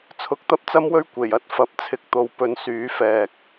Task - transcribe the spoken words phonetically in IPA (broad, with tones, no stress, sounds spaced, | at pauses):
t͡sʰ ʊ˨˥ k̚ t̪ ɐ˥ p̚ t͡s ɐ˥ m w ɵ˥ ɥ kʷ e˨˩ j ɐ˧ t̚ f ɐ˨˥ p̚ t͡sʰ ɪ˨˥ k̚ t̪ o˨ w p ɵ˨ n s yː˨˥ f ɛː˨ k̚